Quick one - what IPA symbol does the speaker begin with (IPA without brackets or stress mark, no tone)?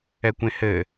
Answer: ɛ